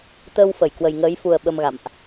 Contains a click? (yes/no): no